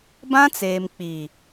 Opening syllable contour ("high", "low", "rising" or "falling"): high